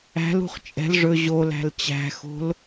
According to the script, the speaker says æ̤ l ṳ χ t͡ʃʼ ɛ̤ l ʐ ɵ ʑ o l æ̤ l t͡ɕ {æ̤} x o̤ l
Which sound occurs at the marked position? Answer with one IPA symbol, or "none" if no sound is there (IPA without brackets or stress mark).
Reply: æ̤